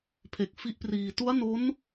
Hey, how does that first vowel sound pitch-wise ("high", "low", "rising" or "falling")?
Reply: low